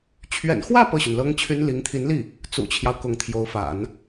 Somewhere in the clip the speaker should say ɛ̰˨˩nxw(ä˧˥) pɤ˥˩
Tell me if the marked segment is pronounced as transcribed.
no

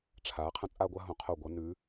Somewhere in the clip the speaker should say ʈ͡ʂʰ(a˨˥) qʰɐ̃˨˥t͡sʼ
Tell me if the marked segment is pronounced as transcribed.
yes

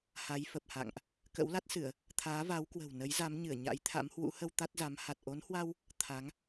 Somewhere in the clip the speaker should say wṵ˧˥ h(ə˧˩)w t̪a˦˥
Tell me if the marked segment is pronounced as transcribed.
no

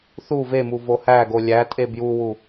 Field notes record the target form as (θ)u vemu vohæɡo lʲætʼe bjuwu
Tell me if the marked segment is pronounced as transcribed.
yes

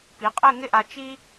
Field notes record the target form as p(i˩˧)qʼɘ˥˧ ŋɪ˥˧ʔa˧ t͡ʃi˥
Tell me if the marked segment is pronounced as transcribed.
yes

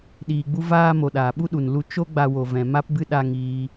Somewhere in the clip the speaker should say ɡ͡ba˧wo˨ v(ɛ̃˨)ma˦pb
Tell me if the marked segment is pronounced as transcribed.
yes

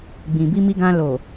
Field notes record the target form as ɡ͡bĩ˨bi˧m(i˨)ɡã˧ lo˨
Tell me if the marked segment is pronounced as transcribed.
no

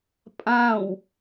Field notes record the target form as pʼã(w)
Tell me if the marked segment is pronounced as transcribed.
yes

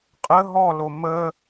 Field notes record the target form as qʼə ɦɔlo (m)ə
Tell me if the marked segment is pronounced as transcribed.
yes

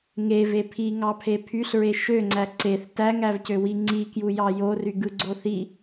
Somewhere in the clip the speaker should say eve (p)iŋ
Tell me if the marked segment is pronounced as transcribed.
no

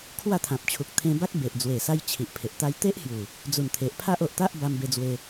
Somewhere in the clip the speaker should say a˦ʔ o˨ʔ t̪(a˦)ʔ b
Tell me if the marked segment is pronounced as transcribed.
yes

